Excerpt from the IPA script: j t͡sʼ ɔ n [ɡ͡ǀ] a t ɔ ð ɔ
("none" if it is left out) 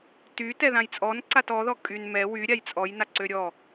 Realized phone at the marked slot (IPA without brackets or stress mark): ǀ